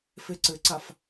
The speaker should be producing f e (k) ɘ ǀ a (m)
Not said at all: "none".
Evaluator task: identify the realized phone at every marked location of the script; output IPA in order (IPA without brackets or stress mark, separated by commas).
ǀ, f